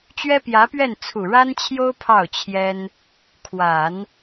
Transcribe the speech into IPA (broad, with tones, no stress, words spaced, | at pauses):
t͡ɕɥɛ˥pjä˧˥pɥɛ˥˩n t͡sʰu˨˩ɻa˥nt͡ɕʰjo˥ʊ̯ pʰɑ˥˩ʊ̯t͡ɕʰjɛ˥n | kʰwa˨˩˦n